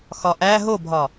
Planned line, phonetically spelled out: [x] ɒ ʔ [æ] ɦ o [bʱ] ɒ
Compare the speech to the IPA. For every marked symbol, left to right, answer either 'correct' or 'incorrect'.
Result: correct, correct, correct

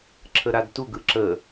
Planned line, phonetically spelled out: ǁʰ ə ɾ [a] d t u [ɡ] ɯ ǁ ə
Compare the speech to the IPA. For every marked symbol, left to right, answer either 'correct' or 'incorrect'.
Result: correct, correct

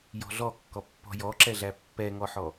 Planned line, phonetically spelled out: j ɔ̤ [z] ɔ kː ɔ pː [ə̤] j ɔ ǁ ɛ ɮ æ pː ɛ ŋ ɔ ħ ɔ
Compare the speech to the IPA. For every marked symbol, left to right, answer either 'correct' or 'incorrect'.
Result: incorrect: ɮ, incorrect: ɔ̤

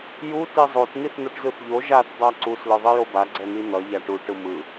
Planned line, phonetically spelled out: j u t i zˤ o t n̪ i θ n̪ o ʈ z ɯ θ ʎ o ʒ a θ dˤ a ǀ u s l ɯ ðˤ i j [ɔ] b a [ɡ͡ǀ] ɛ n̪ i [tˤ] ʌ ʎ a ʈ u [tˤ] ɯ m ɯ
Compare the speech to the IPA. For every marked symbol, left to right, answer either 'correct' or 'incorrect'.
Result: incorrect: o, correct, incorrect: n̪, incorrect: ʈ

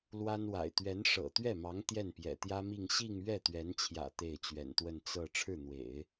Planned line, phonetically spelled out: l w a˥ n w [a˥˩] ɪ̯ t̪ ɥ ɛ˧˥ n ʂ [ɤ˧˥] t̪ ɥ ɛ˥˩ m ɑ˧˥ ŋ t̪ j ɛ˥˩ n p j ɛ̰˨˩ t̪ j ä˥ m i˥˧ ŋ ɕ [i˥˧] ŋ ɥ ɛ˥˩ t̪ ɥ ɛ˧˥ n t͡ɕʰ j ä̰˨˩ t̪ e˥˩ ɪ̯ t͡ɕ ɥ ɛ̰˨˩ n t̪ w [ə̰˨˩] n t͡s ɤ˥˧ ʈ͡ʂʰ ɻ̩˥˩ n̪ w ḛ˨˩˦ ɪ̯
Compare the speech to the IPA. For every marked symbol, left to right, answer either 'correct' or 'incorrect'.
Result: incorrect: a̰˨˩, incorrect: ɤ̰˨˩, correct, incorrect: ə˥˧

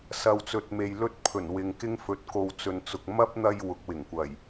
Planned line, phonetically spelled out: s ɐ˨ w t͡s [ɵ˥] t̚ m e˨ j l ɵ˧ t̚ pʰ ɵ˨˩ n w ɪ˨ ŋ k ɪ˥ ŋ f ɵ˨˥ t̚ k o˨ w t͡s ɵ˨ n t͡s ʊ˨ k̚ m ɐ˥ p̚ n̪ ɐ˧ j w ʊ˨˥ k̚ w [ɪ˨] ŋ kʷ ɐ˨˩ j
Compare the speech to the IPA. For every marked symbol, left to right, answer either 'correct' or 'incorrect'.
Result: incorrect: ɵ˨, incorrect: ɪ˨˩

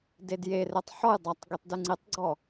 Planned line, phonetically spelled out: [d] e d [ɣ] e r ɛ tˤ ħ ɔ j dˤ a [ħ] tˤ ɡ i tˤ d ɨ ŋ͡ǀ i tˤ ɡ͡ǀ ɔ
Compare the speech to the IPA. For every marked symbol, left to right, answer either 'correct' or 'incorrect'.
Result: correct, incorrect: j, incorrect: none

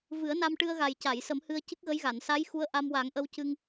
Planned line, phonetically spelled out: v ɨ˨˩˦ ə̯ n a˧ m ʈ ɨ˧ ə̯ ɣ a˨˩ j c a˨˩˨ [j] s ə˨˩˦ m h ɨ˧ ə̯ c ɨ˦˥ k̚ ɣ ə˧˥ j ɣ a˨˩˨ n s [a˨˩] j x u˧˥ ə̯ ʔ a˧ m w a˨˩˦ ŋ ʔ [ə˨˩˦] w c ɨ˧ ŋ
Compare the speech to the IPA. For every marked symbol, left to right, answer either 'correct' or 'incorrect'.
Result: correct, incorrect: a˧˥, incorrect: ə˧

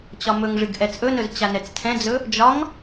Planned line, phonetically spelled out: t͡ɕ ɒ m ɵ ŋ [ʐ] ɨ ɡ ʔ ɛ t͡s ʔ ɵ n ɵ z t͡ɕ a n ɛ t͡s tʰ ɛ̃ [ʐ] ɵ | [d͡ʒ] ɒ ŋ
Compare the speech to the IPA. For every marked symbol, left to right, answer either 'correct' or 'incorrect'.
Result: correct, incorrect: d͡z, correct

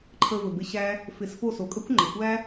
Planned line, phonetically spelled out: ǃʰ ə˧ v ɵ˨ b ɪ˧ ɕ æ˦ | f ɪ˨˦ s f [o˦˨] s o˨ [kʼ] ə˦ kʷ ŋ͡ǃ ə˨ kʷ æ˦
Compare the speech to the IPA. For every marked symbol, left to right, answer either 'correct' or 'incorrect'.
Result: correct, correct

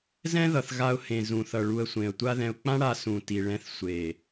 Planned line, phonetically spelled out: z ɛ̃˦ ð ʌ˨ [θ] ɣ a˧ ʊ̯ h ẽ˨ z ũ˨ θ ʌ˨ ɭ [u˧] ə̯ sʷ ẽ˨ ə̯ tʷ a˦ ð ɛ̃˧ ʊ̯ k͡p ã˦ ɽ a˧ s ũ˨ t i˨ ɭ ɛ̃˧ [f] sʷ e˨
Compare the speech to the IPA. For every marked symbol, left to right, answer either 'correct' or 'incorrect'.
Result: correct, correct, incorrect: θ

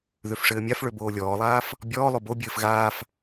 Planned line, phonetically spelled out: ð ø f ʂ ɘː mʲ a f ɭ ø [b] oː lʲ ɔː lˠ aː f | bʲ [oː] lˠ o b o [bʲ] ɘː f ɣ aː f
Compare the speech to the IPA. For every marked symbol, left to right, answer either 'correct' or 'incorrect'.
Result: correct, incorrect: ɔː, correct

